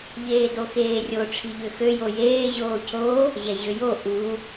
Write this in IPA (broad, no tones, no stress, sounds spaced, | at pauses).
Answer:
ʎ eː d o x eː rʲ o ʈ͡ʂʰ i ʎ ø x ø j o j eː ʑ oː cʰ o | ʑ ɛ ʑ ø j o ʔ u